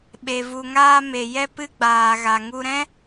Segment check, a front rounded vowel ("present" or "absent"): absent